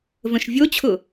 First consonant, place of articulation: labial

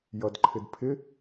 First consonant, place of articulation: palatal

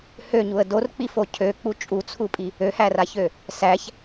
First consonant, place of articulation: glottal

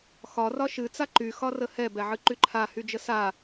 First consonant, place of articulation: velar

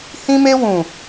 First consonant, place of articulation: glottal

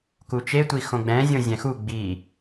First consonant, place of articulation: velar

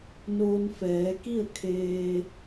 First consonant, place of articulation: alveolar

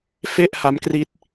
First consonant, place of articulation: labial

